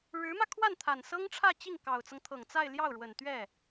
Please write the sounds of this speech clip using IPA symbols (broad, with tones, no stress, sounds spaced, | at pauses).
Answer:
ɻ ɻ̩˧˥ m ä˧ kʰ w a˥˩ n t̪ʰ a˨˩ n s ɤ˥ ŋ ʈ͡ʂʰ ä˥˧ t͡ɕ i˥˩ ŋ k ɑ˨˩ ʊ̯ t͡s ɤ˦ ŋ t̪ʰ ɤ˨˩ ŋ t͡s a˥˧ ɪ̯ l j ɑ˥˩ ʊ̯ ɻ w ə˨˩ n t̪ ɥ ɛ˥˩